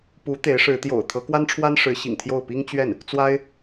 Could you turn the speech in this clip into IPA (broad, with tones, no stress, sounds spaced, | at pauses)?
p u˧˥ t̪ e˧˥ ɪ̯ ʂ ɻ̩˧˥ t̪ j o̰˨˩ ʊ̯ t̪ʰ ɤ˧˥ k w a˥ n ʈ͡ʂʰ w a˥ n ʂ ɻ̩˧˥ ɕ ḭ˨˩ ŋ t̪ʰ j o˥˩ ʊ̯ p i˥ ŋ t͡ɕ ɥ ɛ˥˩ n | t͡s w a˥ ɪ̯